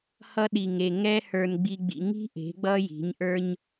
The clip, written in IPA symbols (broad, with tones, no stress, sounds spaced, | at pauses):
h ʌ˧ ɗ i˨ ŋ e˨ ŋ ɛ˦ h ə˞˧ n ɡ͡b i˧ ɡ͡b ḭ˧ ŋ i̤˦ ʔ e̤˨˦ ɡ͡b ʌ˦ j i̤˨˦ ɲ ʔ ə˞˦ ɲ